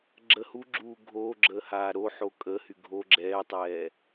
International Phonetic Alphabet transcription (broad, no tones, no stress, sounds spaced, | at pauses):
ɡ͡ǁ ə h u ɡ͡ǁ uː ɡʱ oː ɡ͡ǁ əː h aː ɾ o ħ o kʼ əː h y ɡʱ o ɡ͡ǁ ɛː tˤ ɛː